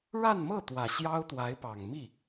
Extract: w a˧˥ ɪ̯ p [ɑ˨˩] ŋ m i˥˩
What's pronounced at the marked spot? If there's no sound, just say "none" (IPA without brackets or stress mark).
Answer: ɑ˨˩